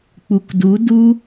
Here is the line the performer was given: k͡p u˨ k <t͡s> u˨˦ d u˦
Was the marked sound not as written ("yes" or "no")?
yes